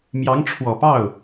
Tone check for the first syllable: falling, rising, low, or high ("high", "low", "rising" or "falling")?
rising